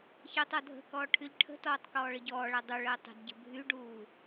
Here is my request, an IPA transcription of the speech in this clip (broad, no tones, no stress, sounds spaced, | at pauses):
ç əː tˤ ɔ dʱ ə̤ k ɔː ʈʰ y ʎ ʈʰ ə̤ t ɔː tˤ k ɔː ɭ ə ɟ ɔː ɭ æ dˤ u ɭ əː tˤ ə̤ d ɟ ə̤ bʱ y ɖ uː